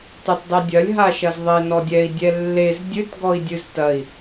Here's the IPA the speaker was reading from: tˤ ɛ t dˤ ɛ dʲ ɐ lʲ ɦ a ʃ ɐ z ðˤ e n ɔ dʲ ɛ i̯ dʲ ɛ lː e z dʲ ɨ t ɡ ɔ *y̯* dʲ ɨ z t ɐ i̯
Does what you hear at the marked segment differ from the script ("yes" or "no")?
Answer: yes